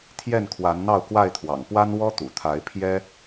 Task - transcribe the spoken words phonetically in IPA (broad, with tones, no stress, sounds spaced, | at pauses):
t̪ʰ j ɛ˥˨ n kʰ w a˨˦ n n̪ ɑ˥˨ ʊ̯ k w a˥˨ ɪ̯ t̪ʰ w ɑ̰˨˩ ŋ p w a˦ n w ɔ˦ t̪ ṵ˨˩ t̪ʰ a˨˦ ɪ̯ pʰ j ɛ˦